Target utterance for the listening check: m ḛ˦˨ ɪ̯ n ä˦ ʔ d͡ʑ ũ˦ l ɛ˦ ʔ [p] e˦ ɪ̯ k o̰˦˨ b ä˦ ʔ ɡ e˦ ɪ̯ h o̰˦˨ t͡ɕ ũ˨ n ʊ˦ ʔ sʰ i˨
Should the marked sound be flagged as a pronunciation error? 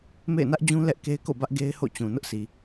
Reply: yes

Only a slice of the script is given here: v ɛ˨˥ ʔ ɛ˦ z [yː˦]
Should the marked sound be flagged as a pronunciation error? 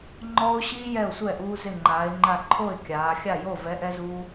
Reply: yes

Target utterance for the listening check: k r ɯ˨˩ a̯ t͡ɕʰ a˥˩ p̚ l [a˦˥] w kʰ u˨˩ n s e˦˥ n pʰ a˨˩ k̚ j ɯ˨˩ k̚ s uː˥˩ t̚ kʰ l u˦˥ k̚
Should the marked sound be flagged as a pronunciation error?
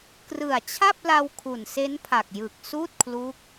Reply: yes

